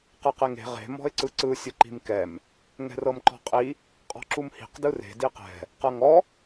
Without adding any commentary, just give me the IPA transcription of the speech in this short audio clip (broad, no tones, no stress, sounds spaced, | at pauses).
q ɯ q e ŋ e̤ ʁ e̤ m ɔ̤ ɪ̯ ǀ ɯ ǀ ɯ sʲ ɯ ǃ i̤ m k ɛ m | ŋ ɛ̤ r ɤ m ǃ ɔ̤ qʼ i | qʼ ɔ̤ ǁ u m h i̤ q d ɯ r e̤ d i q ɛ̤ | q ɤ ŋ ɔ